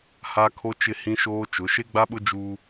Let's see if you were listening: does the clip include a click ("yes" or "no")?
no